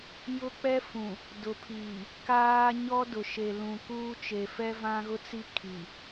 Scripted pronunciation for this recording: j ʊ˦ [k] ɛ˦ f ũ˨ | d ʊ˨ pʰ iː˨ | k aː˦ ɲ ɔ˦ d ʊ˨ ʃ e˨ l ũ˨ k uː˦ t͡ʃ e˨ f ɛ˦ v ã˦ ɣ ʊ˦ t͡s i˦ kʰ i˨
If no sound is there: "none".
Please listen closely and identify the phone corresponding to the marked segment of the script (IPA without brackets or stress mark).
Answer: k͡p